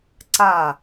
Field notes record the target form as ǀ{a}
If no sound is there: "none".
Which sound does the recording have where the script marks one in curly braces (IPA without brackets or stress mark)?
a